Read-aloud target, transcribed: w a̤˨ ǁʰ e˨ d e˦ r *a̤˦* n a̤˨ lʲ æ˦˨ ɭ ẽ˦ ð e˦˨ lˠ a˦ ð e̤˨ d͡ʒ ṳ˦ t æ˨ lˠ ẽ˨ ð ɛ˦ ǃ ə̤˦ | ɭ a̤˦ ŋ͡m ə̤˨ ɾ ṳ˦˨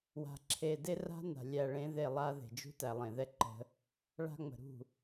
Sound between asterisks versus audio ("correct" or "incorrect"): correct